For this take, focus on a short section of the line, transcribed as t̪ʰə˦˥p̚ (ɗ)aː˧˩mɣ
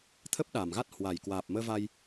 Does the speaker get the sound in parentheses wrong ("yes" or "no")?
no